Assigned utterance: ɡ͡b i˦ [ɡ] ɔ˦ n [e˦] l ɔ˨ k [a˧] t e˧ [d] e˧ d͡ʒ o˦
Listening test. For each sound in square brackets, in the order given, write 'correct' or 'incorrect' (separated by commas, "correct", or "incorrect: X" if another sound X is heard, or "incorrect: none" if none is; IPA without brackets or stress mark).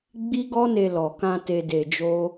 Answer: correct, incorrect: e˧, incorrect: ã˧, correct